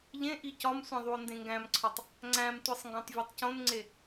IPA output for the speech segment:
ʎ ẽ ʔ i c ɒ m sʷ ẽ ðˤ u o̯ n d ẽ ŋ ɡ æ̃ m ǀʰ ɒ tˤ | ŋ͡ǀ æ̃ m tʷ i sˤ ŋ ɡ õ tˤ vʲ ɒ tˤ c õ n ŋ͡ǀ e

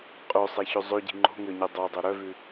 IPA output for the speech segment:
qʼ ɵ sˤ e ç ø zˤ ø ɟ i̤ ŋ͡ǃ o̤ ŋ ø ɲ i dˤ o dˤ ɵ ɾ œ v ʉ

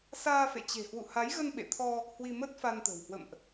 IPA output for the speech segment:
s aː˧ f ḛ˧˨ t͡ɕ e̤˨˩ h w ṵ˧˨ h a˨˦ j ɣ ə˧ n ɓ ḛ˧˨ t̪ʰ ɔ˧ | h w i˧ m ə˦˥ t̚ f a˧ n t̪ ə̤˨˩ w h w ə̰˧˨ m ʔ

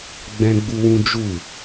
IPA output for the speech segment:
ɡ͡b ɛ̃˦ ɡ͡b u˦ w ũ˦ d͡ʒ u˦˨

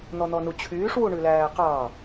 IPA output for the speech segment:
n̪ ɔ n̪ ɔ n u t͡ɕʰ yː ʂ w u ɳ ʉ l æː q ɑ

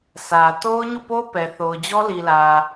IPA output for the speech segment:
sʰ ä˨ t o˦ ʊ̯ ɲ u˦˨ p o˦ p ɛ˨ θ o˨ ʊ̯ d͡ʑ ɔ˦ l i˨ l ä˨

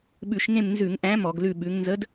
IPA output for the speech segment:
ɓ ʉ˧˩˧ ʃ ŋ ẽ˦˨ m n z ʉ˧˩˧ ŋ ʔ æ̃˨˥ m ɔ˧˩˧ ɡ l ʉ˦˨ ɓ ʉ˨˥ ŋ n z ə˨˥ d

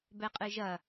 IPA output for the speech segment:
b ɛ qʼ ɨ ʒ ɐ

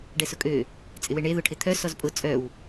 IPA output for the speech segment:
ɖ ɛ s ʊ kʼ ø | t͡sʼ ɪ w e ɳ e ð ʊ ʈʰ ɪ t̪ʰ œ s ɔ z pʼ ʊ t͡sʼ œ w

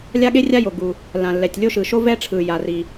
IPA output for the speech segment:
lʲ a˥ ɠ e˥ rʲ a˥ j o˩ ɡ u˩ | l ã˩ lː ɛ˩ tʲ lʲ o˥ ʃ ɯ˩ ʃ o˥ v ɛ˥ ʈ͡ʂʰ ɯ˩ j a˩ r i˩

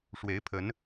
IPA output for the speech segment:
ʂ w e˨˦ ɪ̯ pʰ ə˨˦ n

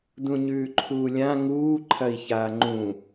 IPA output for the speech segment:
d ũ ɲ ʉː ǃʰ uː lʲ ã ŋ uː ǃʰ ɐ i̯ ç aː ŋ͡ǃ ũ

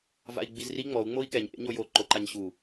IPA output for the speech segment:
v a̰ i̯ ɡ͡b i z r i ŋ͡m ɔ u̯ ŋ͡m o i̯ k ɛ ɲ ʔ ḛ ɲ o j o ǃ o ǃ a ɲ ɕ u

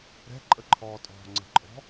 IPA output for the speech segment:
ɾ ɛ̤ ǃʼ ə ǃʰ ɔː tʼ ɔ̤ ŋ͡ǀ ə̤ ǃʼ ɔ̤

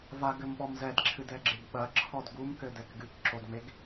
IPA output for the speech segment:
v a ɡ ɘ m ɓ ɔ m z ɛ d ǁʰ ɨ d ɛ ɡ͡ǁ e ɡ ɓ ɐ ǁʰ ɔ d ɡ u m k ɘ d ɛ k ɡ ɨ k ǁ o d ŋ͡m e ɡ

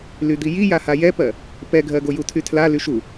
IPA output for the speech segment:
l y d̪ i j i j a h a j ɛ p ɜ | p ɛ ɡʱ ɜ ɡ o j u tʰ y tʰ l a l y ʃ u

